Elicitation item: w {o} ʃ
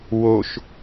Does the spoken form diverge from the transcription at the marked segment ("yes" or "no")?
no